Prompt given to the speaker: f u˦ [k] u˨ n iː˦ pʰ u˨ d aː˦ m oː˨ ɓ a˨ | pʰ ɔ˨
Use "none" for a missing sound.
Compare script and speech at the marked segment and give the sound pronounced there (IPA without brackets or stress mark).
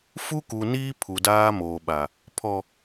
k